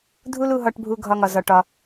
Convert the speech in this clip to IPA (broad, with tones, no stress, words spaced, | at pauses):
dʱu˦lu˧ɦɒ˧ʈ bʱu˧ ɡʱɒ˧ŋɒ˨ zɒ˧ʈɒ˧